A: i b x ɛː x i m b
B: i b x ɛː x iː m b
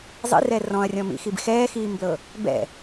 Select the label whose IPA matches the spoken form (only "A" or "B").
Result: B